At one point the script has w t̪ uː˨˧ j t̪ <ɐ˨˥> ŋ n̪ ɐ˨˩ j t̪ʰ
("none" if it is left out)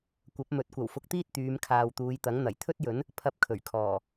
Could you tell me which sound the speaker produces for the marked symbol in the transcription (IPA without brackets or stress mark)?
ɐ˨˥